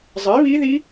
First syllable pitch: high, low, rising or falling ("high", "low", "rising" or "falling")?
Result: rising